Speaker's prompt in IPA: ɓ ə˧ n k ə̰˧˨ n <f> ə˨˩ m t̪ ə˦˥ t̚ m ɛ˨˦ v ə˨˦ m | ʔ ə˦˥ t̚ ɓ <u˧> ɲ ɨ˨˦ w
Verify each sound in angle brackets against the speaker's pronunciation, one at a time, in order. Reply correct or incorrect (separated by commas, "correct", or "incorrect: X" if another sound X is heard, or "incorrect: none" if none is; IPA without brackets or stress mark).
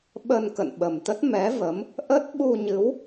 incorrect: ɓ, correct